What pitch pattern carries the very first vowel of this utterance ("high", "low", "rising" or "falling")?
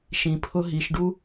low